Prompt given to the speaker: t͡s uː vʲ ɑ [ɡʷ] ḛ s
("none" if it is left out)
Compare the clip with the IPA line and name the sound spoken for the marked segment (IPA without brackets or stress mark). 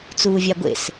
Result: ɡʷ